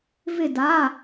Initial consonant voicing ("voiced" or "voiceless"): voiced